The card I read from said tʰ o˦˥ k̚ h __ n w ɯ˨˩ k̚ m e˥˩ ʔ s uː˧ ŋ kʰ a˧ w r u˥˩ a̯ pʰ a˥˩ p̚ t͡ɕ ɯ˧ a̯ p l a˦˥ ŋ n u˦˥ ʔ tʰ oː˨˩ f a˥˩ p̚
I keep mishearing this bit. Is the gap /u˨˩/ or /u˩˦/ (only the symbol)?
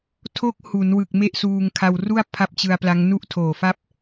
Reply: u˩˦